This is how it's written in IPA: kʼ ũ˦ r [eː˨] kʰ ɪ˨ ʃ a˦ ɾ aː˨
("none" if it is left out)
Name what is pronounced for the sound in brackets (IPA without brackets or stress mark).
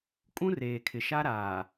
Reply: eː˨